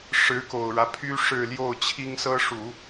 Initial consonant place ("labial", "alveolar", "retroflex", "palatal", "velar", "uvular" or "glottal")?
retroflex